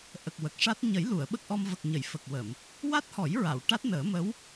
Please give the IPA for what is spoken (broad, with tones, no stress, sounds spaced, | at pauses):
ʔ ə˨˩ k̚ w ə˨˩ k̚ ʂ a˦˥ t̚ ɲ ə˨˩˦ j l u˨˩˨ ə̯ ɓ ə˦˥ k̚ ʔ ɔ˧ m v ə˨˩ k̚ ɲ ə˨˩˨ j f ə˨˩ k̚ w ə˨˩˨ m | w a˦˥ t̚ h ɔ˨˩˦ j ɹ a˨˩˨ w ʈ a˦˥ t̚ n əː˨˩˦ m ə˧˥ w